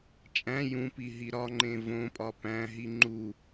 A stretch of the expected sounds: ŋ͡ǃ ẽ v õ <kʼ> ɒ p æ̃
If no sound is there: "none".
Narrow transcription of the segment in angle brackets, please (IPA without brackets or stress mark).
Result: pʼ